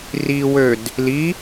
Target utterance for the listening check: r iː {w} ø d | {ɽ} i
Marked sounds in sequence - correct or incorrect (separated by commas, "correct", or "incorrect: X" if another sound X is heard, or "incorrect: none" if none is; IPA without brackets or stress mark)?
correct, incorrect: l